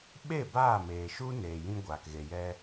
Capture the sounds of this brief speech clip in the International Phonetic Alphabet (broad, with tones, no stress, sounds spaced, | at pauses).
ɓ e˦˨ b aː˦˨ m eː˨ ʃ u˦ n eː˨ j ĩ˧ ɡʷ aː˨ k ɣ e˨ j ɛ˧